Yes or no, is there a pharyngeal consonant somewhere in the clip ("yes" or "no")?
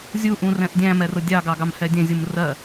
no